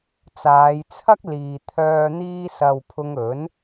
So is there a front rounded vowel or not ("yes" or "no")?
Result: yes